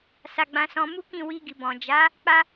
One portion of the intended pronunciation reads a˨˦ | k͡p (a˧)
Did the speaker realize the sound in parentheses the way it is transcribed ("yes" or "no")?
no